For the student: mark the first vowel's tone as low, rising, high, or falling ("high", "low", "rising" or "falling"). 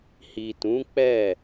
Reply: low